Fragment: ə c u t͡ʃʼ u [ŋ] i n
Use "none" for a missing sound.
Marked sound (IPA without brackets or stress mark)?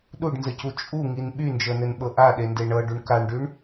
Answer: ŋ